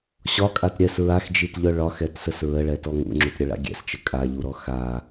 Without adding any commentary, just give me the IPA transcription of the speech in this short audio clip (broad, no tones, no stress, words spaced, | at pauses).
ɕɒkʼat ɾʲɛs ɹaxd͡ʒitʎœ ɭɒxɛtsəs ɹəɭɛtɔ ŋṵŋ͡ǁutɾʲəɭa̰ ɡʲɛ̰st͡ʃə kʼaʎuɾɔ xa